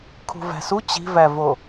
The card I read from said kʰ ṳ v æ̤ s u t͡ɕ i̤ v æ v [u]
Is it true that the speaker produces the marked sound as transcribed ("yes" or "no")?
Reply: no